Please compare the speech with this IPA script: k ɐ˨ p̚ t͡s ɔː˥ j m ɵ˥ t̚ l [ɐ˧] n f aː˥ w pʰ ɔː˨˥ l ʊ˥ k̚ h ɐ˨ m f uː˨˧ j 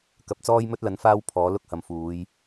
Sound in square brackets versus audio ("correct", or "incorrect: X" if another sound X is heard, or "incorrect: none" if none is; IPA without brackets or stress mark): incorrect: ɐ˨˥